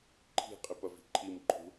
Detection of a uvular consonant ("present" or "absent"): present